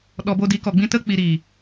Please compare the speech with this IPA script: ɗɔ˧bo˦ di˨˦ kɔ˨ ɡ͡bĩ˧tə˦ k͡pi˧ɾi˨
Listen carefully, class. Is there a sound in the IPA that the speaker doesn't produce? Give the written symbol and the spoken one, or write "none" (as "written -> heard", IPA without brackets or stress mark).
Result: none